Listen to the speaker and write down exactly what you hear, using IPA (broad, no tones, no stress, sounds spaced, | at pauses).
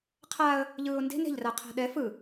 qʰ a ə̯ | ʎ ɯː ʊ̯ n d e̤ n e̤ ʎ r a qʰ a̤ ɗ ɛ f ɯ